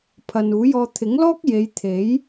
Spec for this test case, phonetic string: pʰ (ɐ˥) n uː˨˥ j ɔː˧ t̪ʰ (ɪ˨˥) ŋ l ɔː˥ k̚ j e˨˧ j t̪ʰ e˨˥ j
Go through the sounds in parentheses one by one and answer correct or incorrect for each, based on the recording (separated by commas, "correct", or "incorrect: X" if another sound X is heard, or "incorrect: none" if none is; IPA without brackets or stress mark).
incorrect: ɐ˨, correct